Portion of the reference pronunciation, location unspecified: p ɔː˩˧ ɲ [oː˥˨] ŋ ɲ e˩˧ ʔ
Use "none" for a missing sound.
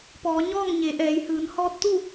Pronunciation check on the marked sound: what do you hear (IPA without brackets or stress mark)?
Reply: ɔː˥˨